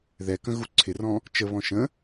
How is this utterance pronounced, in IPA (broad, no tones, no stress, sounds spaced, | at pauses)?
ð ɛ k ə̃ ɣ u ǀʰ ɪ r ɔ̃ | t͡ʃ ə β ɔ̃ ʃ ə̃